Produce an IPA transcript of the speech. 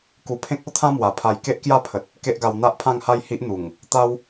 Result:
ku˧pʰẽ˦k̚o˦t̪ʰã˦ mwa˨˩pʰa˧j ke˦ʔkja˥˧pʰə˨t̚ | ke˦ʔɡa˧w n̪a˦ʔpʰã˥˧ŋha˥˧j hi˦ʔn̪u˨˩ŋ | t̪a˦w

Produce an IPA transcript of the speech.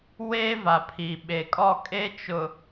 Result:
weː˦va˨pʰi˨ ɓe˨kʼɔ˦˨ kʼe˦t͡ʃʊ˨

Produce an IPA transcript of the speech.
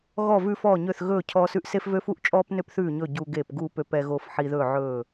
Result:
ɣɔ˥˨ vʉ˦ fɔː˥˨ɲø˥˨θ ɣɵː˥˨ cʰɔː˦sʉ˦ʔ se˦fvø˦ fu˦ʔt͡ʃʼɔː˦pnø˦p θʉː˥˨ɲɵ˥˨ ɟu˦ɡe˥˨p ɡuː˥˨pø˦pɛ˦ ɣoː˦fħi˦ ðɵː˥˨ʕɵː˥˨

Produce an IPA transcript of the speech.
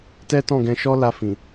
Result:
tɛ˦tɔ̃˦˨ɡɛ̃˧ ʃɔ˦la˧fĩ˨

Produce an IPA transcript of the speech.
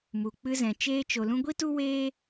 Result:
mu˨ k͡pɨ˧zɛ̃˨ t͡ʃeː˧t͡ʃo˨lũ˧ ɡʷi˦tu˦ weː˦

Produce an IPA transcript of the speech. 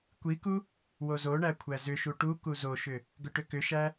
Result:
kʷiku | wozoɳæ kʷʰæzʏʃu ʈu kuzoʃʏ | ɡʏʈʏkʏʃæ

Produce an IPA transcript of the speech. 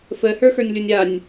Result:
fəhə˞xə˞nʲlʲonʲ anʲ

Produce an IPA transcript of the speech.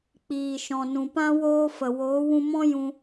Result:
k͡piː˨ʃɔ̃˨nũ˨pã˦ woː˦fə˨ woː˨˦wũ˧mɔ̃˦ jũ˧

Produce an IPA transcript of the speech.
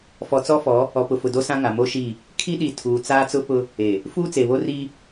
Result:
fɔ˨t͡sɔ˦fɔ˨˦ | ɔ˨pʊ˨ fʊ˨ do˦sã˦ ŋa˨mo˦ʃi˦˨ | kʰi˦ ɗi˨ tʰuː˨t͡saː˦t͡sʊ˦pʊ˦ | e˨ | fuː˦t͡se˨βo˦ri˦

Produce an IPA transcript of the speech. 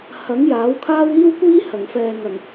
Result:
hɐ˨˥ŋ jaː˨˥wkʰaː˥w iː˥wkʷiː˥ hɐ˨˩ŋfɛː˨ŋɐ˨˩ŋ

